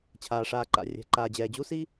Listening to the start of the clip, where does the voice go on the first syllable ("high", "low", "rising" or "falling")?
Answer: low